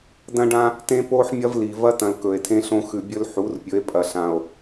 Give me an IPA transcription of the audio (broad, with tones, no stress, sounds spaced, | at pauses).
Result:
d ɐ̃˦ ɖ ã˦ | t ẽ˦ p o˦ ħ mʲ ɐ˦ v l i˨ v ɐ˦ t ɐ̃˨ l k ɵ˨ e̯ tʰ ẽ˦ ɬ õ˦ x ʉ˨ bʲ ɵ˦ l ħ u˨˦ r pʲ ɵ˨˦ e̯ pʼ ɐ˨ ɬ ã˨ o̯